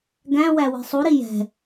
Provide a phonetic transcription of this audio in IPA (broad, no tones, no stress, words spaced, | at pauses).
ɡæ̃wæ wi̤sˤuɾi jɛ̤